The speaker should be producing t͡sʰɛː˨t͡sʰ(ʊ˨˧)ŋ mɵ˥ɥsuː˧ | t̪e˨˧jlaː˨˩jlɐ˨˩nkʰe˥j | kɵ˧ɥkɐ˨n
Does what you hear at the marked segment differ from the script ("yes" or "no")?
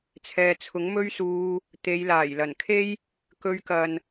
yes